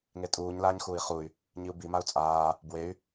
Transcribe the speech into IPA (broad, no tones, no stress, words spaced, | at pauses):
ŋetʼuːɲ laːɲxuːi̯χuy̯ | ɲiu̯bi mau̯t͡sʼaː | bwey̯